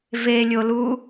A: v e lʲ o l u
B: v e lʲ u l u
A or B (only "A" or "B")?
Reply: A